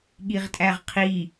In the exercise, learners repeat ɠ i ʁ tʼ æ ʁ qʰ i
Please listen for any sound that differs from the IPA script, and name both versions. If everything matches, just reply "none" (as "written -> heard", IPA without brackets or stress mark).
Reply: none